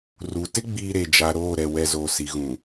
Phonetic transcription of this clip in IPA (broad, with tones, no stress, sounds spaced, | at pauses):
r u˨ t ɪ˦ ɡ͡b iː˨ ɾ e˨ d͡ʒ a˨ ɾ oː˦˨ ɾ ɛ˨ w ɛ˨ z oː˨ s i˨ ɣ ũ˨